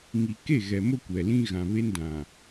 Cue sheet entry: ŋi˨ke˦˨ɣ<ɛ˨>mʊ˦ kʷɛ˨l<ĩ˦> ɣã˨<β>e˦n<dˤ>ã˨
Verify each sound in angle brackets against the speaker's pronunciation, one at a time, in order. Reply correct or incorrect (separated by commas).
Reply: correct, correct, correct, incorrect